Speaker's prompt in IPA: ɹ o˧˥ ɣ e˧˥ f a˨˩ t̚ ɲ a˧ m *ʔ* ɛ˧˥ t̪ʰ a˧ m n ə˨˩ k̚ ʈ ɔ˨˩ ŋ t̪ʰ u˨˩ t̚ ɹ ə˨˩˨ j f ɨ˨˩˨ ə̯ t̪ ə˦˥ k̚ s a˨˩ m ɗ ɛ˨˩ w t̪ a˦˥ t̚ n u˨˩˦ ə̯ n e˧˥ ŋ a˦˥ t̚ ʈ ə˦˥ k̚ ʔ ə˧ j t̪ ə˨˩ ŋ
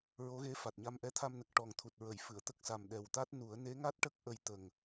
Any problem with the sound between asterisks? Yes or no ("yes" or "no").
no